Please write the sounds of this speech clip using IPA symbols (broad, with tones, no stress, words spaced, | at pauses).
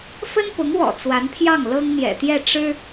fə˥npʊ˧˥ŋwɔ̰˨˩ t͡swa˧˥npʰjɑ˥˩ŋ lɤ˥ŋn̪jɛ̰˨˩t̪jɛ˥˩ ʈ͡ʂɻ̩˥